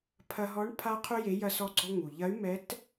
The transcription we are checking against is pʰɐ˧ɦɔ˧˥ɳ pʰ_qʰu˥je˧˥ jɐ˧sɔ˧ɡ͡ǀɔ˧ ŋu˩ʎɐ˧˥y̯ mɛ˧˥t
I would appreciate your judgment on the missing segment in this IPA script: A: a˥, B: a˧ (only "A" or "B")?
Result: A